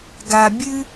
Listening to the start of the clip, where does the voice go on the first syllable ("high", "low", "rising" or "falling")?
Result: low